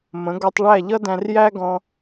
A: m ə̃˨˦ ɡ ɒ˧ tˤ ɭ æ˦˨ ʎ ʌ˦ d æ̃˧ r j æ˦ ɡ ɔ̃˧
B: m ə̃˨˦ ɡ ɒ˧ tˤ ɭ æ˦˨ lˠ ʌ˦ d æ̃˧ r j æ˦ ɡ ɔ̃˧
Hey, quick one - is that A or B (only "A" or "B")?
A